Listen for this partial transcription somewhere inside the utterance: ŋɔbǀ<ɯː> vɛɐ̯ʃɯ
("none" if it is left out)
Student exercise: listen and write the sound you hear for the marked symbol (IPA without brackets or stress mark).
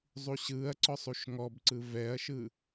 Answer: ɯ